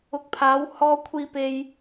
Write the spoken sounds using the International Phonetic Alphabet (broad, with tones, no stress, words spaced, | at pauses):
ʊ˨˥k̚pʰaː˨˧w hɔː˧kʷʰiː˧pe˧j